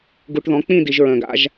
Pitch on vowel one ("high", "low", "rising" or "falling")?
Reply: low